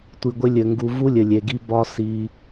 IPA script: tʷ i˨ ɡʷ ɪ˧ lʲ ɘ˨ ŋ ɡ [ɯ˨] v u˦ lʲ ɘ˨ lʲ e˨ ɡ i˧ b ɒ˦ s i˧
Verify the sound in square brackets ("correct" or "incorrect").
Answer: incorrect